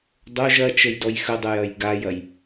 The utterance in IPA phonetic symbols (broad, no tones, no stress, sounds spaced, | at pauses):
dˤ o ʒ ɐ t͡ʃ ə j d ɔ j x ə dˤ ə j ɐ j ɡ a j ɐ j